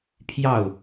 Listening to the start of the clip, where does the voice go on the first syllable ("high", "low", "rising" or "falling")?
falling